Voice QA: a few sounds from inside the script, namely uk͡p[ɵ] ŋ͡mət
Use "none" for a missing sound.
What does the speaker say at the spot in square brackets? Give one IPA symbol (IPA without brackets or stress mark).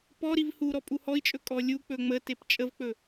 ɵ